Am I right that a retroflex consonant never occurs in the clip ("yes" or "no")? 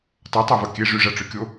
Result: no